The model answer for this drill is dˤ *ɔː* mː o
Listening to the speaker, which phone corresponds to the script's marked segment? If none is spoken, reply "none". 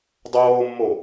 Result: oː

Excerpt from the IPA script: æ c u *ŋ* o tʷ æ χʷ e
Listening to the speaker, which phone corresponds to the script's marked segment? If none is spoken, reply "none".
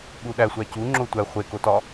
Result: ŋ͡ǁ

